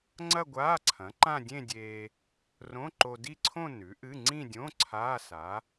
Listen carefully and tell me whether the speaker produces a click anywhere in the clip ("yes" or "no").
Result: yes